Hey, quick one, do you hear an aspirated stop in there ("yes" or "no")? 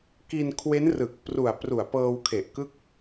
yes